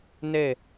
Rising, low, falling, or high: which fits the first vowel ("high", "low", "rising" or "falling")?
falling